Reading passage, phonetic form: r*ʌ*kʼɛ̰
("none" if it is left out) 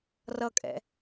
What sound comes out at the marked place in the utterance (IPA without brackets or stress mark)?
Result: ʌ